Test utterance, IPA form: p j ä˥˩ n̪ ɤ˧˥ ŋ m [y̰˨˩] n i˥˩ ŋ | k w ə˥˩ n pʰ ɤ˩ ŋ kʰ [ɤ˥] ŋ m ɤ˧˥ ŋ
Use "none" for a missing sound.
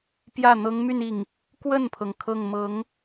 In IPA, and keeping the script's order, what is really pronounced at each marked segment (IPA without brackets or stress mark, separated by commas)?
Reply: y˥˧, ɤ˥˩